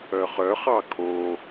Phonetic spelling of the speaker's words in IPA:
œχœχɑ kʰo

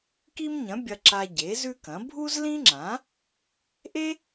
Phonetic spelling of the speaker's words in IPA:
ki˥mɲɐ̃˨˥ bʲɐ˥ǁa˥ ɟe˨˥zʉ˥kɐ̃˨˥ bʱu˥zlĩ˥ŋ͡ǁã˨˥ | ʔe˥

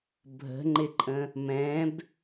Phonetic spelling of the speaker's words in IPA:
bʱə̤ŋ͡ǃɪǃʼə̃ | mɛ̃b

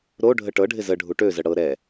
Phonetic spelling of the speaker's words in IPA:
ɾo ɖʱəʈɤɖʱɪ zə ɖʱuʈøzə ɽɤ ɾɛ

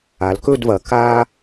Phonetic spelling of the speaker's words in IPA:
a˩˧lkɵ˥˧dvɐ˩˧ ka˧

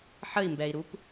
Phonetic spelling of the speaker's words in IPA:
ħəi̯mbɛi̯ɾup

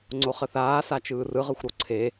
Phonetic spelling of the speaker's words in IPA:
ŋ͡ǀoχəθaː sat͡ʃɯːrɯ ʁɯxʷɾoǀʰe

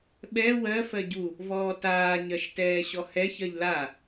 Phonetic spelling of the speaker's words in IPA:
ɓɛ wɜ fɜɟu | vɔːtaː ɲɜʃtɛːɕɔhɛ çɜʎla

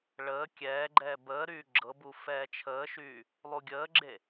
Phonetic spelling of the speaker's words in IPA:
ɭəː kʲɛːɡ͡ǃɛː bəːɾyː ɡ͡ǁɤbu fɛːt͡ʃʰəːʃyː | lˠuɡʲəːɡ͡ǁe

